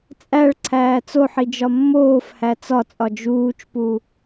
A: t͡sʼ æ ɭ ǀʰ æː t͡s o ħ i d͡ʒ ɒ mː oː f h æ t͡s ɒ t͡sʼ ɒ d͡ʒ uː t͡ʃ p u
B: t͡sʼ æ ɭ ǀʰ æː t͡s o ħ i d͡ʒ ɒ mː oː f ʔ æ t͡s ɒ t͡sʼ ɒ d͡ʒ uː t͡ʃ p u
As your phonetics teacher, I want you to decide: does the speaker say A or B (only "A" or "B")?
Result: A